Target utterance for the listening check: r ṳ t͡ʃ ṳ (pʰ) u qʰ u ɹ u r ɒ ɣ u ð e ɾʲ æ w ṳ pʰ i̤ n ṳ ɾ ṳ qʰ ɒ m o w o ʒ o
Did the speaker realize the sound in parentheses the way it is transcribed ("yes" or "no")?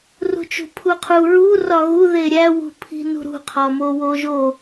yes